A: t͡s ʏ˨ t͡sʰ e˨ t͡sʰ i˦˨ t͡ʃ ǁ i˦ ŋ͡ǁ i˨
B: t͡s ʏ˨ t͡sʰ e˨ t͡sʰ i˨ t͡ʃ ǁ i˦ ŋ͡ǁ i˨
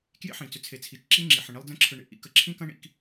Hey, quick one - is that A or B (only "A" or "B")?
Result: B